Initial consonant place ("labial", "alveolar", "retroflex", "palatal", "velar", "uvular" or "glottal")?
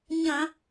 palatal